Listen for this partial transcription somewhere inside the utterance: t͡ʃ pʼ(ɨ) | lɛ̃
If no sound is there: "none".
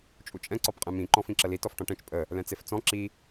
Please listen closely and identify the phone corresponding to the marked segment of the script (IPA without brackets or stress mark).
ə